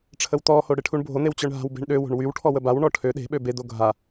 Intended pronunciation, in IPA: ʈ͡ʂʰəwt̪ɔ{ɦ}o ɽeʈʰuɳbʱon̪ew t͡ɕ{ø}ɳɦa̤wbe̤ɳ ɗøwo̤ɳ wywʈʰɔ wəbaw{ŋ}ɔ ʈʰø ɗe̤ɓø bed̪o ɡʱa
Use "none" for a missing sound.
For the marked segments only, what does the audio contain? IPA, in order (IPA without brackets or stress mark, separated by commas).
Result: h, œ, ɳ